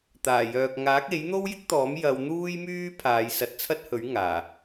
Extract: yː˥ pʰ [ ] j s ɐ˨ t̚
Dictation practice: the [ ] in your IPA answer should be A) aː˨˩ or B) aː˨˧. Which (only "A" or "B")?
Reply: B